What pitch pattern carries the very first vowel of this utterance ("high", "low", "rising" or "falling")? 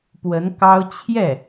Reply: rising